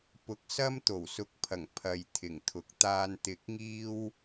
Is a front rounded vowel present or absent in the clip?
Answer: absent